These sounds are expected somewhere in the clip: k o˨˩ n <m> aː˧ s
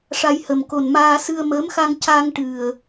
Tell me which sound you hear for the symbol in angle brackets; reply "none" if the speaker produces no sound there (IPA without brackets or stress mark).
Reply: m